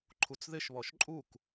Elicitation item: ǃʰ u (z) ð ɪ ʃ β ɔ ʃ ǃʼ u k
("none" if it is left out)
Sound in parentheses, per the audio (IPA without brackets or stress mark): t͡s